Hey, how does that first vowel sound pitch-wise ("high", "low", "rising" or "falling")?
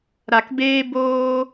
low